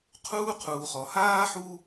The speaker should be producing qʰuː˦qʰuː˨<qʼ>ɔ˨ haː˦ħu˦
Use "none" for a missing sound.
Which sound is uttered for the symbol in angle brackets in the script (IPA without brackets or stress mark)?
χ